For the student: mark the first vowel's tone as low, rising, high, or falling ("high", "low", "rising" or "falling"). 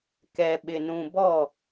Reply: low